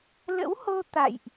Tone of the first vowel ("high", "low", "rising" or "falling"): rising